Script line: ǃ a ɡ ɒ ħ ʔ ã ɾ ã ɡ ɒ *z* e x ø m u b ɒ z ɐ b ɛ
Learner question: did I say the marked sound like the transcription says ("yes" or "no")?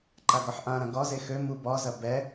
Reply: yes